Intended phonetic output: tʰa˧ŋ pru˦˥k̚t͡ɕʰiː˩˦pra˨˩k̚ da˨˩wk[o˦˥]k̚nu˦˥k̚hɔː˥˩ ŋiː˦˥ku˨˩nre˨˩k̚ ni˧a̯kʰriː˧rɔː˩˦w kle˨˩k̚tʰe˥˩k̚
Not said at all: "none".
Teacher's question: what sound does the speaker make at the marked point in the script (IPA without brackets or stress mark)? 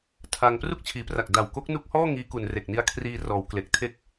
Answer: o˦˥